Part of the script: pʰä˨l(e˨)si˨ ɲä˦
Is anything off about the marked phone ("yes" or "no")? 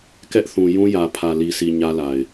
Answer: yes